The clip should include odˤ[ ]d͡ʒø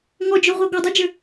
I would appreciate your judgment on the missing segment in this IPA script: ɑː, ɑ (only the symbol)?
ɑ